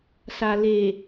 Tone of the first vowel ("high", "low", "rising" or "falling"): low